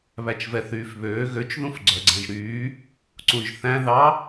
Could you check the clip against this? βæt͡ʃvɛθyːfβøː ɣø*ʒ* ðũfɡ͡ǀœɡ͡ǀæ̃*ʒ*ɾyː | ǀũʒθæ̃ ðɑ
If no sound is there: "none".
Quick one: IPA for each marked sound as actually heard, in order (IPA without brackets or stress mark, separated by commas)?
t͡ʃ, ʒ